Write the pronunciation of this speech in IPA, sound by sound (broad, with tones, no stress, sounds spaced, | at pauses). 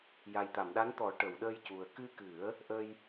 j a˨˩ j t̪ a˨˩˨ m ɗ a˧˥ n t̪ ɔ˨˩˦ ʈ ə˨˩˨ w ɗ əː˧ j c u˨˩ ə̯ k ɨ˧ k ɨ˨˩˦ ə̯ | ʔ ə˧ j